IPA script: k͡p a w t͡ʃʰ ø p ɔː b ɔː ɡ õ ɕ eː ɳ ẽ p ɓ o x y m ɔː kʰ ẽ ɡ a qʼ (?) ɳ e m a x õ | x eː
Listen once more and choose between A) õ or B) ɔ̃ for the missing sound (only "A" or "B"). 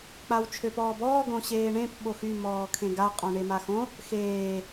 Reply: B